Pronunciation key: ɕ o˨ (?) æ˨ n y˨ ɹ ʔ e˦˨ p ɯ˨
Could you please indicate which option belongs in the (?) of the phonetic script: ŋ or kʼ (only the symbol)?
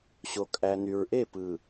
kʼ